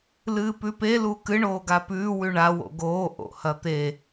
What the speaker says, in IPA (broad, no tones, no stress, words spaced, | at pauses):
lɨːpʉpe lukɨ ɳoːɡapʉː wʉɳa wo̰ɡoː ʔo̰hɐt̪e